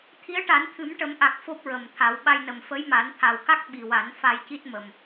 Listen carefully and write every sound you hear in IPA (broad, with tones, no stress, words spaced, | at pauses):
t̪ʰi˧˥ə̯ʈa˨˩˦nt̪ʰɨ˨˩˦mʈə˨˩˦m ʔa˨˩k̚ fo˦˥p̚ɹə˨˩mt̪ʰa˨˩˦w ɓa˧jnə˨˩m fə˧˥jma˨˩˦nt̪ʰa˨˩wka˦˥k̚ ɓi˨˩wa˨˩˦n fa˧jci˦˥t̚mə˨˩m